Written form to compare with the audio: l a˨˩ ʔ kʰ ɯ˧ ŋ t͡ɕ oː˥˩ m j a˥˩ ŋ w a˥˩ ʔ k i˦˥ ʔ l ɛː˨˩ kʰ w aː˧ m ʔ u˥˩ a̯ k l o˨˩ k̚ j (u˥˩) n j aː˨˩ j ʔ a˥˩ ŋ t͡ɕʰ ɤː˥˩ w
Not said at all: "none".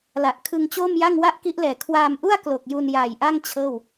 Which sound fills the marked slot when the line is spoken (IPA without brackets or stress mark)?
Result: u˧